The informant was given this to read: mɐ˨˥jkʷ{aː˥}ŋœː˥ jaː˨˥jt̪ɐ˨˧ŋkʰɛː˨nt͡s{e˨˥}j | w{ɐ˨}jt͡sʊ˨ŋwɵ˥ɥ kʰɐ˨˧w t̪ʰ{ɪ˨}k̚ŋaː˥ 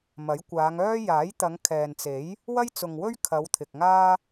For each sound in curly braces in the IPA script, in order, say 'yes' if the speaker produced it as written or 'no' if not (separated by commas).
no, yes, no, yes